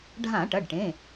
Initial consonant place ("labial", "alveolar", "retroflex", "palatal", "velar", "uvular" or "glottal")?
retroflex